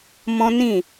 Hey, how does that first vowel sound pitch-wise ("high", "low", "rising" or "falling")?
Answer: high